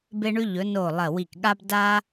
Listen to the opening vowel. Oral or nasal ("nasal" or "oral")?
oral